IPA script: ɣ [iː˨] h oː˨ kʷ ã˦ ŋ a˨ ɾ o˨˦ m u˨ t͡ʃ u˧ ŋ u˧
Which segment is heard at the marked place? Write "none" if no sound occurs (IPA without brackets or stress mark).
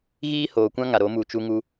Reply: iː˦